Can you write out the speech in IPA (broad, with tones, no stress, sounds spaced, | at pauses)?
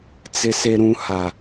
t͡s ɪ˨ s e˨ ɾ ũ˨ h a˨